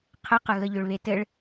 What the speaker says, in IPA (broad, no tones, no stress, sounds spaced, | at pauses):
qʰ ɘ q ə ɣ ə ʎ ʏ ɭ β e t ɘ ɭ